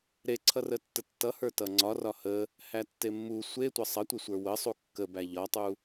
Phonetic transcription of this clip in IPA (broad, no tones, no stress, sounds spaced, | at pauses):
ɾ e ǀʰ ʌ r ə tː ə tː ʌ h ə˞ t ʌ ŋ͡ǀ ɒ r ɒ h ə | h æ tː e mː u sʷ e tʷ ʌ sˤ ʌ tʷ e sʷ ə˞ w ə sˤ u kː ə b æ ʎ ɒ tˤ u